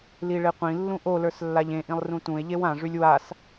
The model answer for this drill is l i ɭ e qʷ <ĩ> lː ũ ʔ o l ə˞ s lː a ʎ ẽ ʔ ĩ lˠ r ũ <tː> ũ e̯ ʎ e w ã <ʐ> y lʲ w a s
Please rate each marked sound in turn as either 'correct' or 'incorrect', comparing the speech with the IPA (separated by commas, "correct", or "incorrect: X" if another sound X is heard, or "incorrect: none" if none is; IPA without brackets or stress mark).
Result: correct, incorrect: t, correct